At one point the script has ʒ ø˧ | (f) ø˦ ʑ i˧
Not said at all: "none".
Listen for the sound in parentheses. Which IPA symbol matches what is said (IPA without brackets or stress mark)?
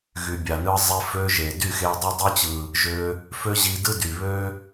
f